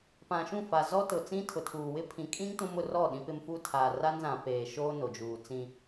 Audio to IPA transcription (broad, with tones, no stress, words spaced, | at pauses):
pã˨ʃũ˦˨fa˨zɔ˦ tʊ˨t͡sĩ˦ tʰʊ˨tʰuː˨wɪ˦ pʰĩ˨kʼĩ˦ŋ tũ˦m ʊ˨rɔ˦˨ ɗĩ˦pɪ˦mfuː˦ tʰaː˨ra˦nzã˨ peː˨ʃoː˦ no˨d͡ʒuː˨ t͡sĩ˦